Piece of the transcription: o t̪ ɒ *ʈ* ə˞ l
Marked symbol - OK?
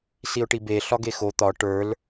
yes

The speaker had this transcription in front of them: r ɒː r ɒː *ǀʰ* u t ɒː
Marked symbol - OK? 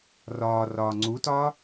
no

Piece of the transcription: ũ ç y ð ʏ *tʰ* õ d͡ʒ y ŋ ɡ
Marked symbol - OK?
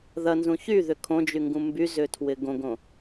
no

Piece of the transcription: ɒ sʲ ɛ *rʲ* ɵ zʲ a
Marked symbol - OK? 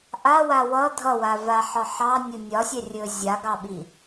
yes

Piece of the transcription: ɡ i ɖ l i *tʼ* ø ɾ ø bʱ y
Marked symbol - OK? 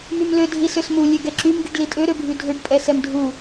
yes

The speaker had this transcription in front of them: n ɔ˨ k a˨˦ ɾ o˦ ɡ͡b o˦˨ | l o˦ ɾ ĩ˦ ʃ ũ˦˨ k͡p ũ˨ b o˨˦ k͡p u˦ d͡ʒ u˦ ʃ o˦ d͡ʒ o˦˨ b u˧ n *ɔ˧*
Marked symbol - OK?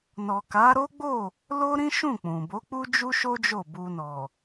no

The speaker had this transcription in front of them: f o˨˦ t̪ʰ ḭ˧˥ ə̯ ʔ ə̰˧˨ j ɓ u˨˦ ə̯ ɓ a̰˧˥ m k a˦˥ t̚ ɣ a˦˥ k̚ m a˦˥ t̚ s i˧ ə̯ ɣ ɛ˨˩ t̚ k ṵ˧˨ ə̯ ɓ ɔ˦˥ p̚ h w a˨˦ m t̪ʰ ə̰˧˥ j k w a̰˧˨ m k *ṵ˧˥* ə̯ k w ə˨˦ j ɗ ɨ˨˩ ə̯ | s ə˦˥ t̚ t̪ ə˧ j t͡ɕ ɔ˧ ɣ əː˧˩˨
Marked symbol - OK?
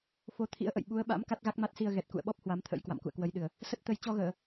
no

